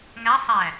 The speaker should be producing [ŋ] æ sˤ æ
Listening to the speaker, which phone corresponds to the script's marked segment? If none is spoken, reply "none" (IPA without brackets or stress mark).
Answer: ŋ